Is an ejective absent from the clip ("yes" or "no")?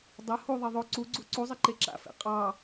no